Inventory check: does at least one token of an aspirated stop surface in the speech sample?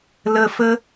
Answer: no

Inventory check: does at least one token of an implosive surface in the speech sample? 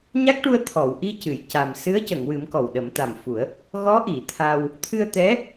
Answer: yes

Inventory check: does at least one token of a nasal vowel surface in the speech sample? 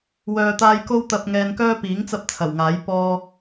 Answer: no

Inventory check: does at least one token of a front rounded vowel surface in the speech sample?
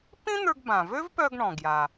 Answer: yes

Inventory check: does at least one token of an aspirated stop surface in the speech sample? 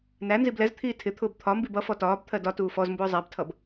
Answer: yes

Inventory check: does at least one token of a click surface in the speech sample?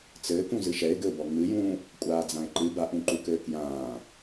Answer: yes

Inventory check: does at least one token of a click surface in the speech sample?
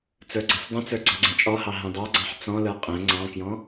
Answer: yes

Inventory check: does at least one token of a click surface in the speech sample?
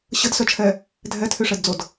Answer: no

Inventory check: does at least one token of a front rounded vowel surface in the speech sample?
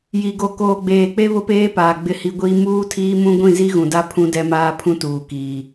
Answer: no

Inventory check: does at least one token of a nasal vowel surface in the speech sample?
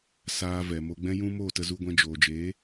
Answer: yes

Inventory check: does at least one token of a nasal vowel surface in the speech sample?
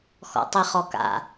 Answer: no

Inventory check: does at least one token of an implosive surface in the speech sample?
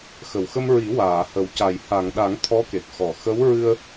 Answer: yes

